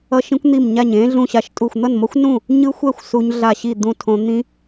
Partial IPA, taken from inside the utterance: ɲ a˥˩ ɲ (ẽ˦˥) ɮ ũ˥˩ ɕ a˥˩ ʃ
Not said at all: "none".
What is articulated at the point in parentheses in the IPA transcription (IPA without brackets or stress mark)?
ẽ˦˥